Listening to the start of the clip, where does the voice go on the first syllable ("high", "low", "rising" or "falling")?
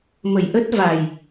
low